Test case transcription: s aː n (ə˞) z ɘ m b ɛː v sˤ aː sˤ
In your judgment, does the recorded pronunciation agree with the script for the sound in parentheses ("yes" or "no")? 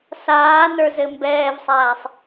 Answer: yes